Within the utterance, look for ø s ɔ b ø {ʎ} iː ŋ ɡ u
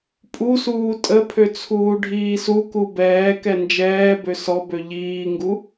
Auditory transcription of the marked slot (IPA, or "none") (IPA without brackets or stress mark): ʎ